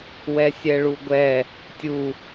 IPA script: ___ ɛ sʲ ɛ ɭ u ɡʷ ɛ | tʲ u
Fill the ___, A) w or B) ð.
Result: A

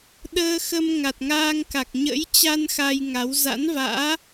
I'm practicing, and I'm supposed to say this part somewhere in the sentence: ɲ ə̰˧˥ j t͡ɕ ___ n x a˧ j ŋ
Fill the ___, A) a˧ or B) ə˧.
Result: A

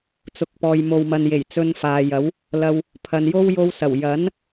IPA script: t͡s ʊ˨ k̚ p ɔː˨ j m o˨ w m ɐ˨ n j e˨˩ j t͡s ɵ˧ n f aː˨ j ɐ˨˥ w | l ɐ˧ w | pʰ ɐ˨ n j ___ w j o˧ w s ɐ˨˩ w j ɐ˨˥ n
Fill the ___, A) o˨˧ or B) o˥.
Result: B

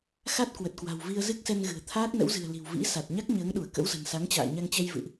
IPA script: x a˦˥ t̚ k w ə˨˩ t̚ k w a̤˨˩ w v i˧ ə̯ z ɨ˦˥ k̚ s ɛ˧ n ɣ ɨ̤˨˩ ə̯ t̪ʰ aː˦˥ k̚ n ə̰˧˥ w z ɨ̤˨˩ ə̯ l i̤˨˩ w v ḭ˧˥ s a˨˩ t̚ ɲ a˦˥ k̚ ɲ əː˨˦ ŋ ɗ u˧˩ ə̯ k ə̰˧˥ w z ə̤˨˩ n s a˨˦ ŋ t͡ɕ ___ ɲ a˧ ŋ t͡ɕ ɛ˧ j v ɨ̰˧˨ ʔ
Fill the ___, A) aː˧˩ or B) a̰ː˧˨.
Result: B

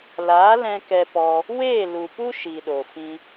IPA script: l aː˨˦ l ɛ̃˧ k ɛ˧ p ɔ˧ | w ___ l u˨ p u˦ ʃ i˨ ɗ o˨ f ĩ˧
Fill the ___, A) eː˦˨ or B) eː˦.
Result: A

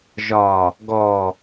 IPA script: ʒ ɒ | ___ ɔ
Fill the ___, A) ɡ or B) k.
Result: A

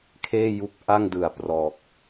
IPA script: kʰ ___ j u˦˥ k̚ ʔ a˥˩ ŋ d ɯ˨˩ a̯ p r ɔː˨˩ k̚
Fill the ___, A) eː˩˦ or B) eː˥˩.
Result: B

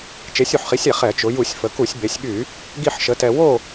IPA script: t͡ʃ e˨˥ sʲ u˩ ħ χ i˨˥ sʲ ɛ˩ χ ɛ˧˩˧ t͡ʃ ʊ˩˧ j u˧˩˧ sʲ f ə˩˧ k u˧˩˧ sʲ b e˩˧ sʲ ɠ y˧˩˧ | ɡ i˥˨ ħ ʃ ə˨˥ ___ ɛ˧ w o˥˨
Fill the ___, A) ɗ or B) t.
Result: B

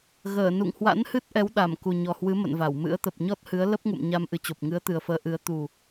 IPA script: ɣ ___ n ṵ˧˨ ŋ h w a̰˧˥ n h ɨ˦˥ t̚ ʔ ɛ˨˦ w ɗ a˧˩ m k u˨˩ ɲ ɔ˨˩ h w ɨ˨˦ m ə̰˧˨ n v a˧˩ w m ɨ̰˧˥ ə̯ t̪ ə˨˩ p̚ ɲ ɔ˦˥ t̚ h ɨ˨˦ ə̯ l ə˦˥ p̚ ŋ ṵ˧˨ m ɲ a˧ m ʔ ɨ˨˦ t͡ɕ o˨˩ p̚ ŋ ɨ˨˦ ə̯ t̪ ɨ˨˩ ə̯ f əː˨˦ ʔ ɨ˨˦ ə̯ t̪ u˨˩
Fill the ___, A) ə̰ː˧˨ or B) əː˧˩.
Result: B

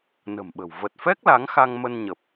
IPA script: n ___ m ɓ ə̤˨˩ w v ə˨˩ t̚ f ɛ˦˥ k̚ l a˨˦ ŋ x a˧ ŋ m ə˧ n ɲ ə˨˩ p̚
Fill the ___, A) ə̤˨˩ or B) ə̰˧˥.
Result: A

